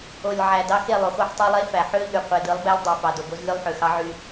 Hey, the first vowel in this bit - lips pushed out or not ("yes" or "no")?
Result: yes